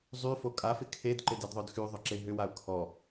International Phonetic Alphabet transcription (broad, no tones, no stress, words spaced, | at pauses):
zˤyfo kʼafɪ kʰedǃɪdedðˤœd xyðˤʏǁe ɦʏwaʊ̯ kʰɔ